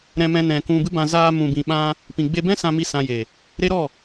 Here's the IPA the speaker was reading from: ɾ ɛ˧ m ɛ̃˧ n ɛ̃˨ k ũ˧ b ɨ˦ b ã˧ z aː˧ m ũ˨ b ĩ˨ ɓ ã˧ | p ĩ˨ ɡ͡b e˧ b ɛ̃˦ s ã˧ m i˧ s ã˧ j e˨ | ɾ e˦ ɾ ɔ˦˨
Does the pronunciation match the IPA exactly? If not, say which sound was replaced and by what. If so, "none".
ɛ˧ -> ɛ̃˧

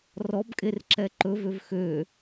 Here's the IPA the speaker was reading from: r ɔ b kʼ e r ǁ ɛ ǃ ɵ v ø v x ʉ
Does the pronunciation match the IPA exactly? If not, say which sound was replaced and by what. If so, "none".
ʉ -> ø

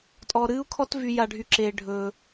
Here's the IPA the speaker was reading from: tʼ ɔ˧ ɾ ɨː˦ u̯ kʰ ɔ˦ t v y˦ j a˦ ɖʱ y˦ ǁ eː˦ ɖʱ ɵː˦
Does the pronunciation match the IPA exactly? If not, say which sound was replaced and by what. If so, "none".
none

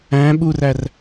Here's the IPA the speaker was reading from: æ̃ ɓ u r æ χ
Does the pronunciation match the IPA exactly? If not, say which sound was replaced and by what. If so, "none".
χ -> r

